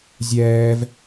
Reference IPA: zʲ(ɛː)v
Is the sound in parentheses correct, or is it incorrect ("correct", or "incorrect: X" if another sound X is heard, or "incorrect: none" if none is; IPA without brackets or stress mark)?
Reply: correct